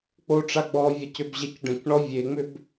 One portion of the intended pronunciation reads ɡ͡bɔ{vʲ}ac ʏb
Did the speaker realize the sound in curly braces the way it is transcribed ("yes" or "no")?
yes